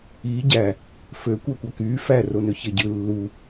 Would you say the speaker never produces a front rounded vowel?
no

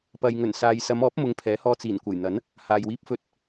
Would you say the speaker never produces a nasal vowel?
yes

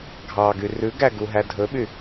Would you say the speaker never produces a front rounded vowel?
no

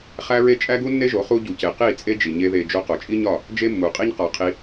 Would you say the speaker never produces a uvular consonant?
no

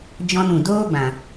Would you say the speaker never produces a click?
yes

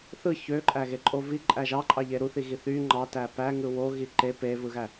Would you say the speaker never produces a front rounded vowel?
no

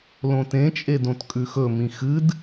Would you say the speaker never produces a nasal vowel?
no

